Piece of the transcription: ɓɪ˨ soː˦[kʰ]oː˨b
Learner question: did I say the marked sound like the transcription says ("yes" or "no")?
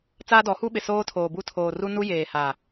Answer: no